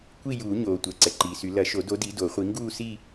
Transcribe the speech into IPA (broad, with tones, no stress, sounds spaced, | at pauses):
kʷ i˥˧ j uː˨˩˦ ɲ oː˩ tʷ ɛ˩˧˩ ǀ ɛ˩ ǃ iː˩ s y˨˩˦ l ɐ˨˩˦ ʃ o˨˩˦ d o˨˦ d i˨˦ d o˨˩˦ χʷ i˨˦ ŋ ɡ uː˥˧ s i˥˧